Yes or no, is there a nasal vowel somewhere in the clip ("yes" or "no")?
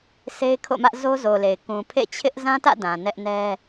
yes